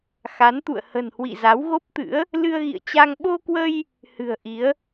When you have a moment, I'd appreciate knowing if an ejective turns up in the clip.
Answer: no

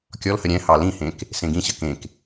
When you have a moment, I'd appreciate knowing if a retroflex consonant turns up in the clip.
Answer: no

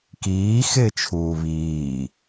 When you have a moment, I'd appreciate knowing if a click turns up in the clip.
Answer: no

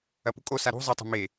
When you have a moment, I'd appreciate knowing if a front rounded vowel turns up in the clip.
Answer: no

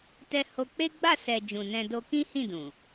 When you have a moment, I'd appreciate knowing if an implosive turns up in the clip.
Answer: no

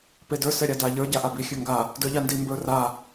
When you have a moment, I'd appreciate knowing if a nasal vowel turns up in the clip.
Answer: no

